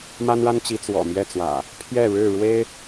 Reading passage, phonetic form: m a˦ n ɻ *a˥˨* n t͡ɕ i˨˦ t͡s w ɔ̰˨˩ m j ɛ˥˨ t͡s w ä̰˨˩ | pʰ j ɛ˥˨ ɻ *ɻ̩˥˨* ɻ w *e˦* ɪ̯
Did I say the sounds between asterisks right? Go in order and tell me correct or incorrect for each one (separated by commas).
incorrect, correct, correct